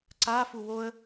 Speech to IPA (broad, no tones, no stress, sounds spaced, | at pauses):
ǀ a f u w o ə̯